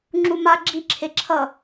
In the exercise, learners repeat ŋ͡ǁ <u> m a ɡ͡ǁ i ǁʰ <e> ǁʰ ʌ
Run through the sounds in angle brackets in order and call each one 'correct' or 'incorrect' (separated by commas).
correct, correct